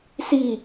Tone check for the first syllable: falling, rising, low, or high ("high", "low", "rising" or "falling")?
falling